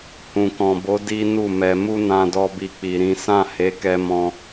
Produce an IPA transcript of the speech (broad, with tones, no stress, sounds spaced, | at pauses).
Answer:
h ũ˨ k ɔ̃˨ b o˨˦ d i˦ n u˦˨ m ɛ˧ m u˦ n ã˧ d ɔ˧ b i˧ k͡p i˨ ɾ ĩ˨˦ s ã˦˨ h e˨˦ k ɛ˧ m ɔ̃˧